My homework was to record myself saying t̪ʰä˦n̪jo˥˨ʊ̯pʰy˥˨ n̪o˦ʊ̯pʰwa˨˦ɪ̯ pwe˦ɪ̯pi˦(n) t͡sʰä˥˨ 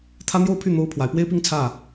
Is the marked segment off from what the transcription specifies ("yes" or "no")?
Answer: yes